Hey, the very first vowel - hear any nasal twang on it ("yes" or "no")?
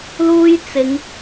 no